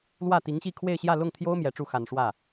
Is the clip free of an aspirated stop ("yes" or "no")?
no